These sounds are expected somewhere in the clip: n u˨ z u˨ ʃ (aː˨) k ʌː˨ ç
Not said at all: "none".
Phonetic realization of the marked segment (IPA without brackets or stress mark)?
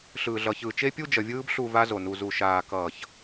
aː˨